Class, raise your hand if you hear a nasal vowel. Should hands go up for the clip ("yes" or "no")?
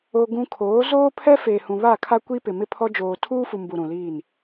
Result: yes